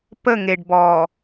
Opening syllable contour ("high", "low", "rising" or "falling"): falling